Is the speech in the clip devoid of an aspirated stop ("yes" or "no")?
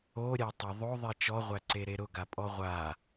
yes